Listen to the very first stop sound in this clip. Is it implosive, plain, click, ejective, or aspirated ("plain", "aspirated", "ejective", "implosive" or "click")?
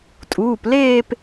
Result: ejective